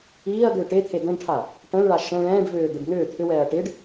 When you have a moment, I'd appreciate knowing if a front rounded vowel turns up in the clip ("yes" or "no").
yes